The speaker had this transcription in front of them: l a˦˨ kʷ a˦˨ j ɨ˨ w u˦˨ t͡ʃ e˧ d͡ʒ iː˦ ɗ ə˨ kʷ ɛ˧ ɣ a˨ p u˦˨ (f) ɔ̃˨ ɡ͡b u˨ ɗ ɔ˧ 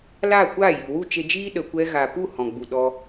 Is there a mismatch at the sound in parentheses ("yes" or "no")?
yes